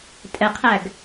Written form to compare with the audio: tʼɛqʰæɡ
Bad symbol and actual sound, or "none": none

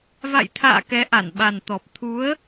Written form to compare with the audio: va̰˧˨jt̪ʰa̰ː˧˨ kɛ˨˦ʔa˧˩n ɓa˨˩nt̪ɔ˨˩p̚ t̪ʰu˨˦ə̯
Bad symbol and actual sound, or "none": none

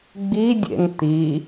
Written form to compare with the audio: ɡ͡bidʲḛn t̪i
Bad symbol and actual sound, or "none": none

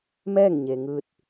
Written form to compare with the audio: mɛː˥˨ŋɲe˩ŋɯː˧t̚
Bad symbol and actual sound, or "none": none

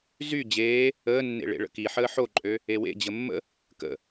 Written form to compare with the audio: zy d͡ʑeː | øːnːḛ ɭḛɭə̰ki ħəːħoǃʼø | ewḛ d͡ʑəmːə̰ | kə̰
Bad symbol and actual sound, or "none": øː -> əː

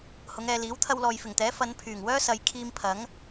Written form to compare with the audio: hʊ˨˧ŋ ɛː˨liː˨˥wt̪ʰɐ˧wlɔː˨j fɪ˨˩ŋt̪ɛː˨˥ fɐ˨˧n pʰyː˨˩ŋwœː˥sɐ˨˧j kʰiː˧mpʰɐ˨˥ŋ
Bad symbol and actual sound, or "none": none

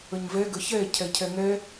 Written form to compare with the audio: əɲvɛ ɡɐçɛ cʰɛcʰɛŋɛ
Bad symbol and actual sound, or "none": ɐ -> ə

